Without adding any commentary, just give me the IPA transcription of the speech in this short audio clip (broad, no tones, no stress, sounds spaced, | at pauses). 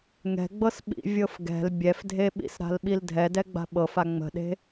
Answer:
ŋ ɛ̤ ɡ͡b ɤ s ɓ ḭ vʲ ɤ f ɡ ɛ̤ l bʲ ɛ f dʱ e ɓ ḭ s ɾ a̤ l ɓ i l dʱ ɛ d ɛ ɡ͡b a̤ ɓ ɤ f a ŋ͡m ə̤ ɗ e̤